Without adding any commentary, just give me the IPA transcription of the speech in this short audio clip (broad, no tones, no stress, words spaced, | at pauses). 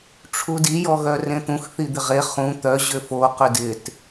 ʈ͡ʂʰudi jɔɣœrẽt̪ũx θid̪ɪʁe χũ t̪œ ʑʏfo qʏdɪt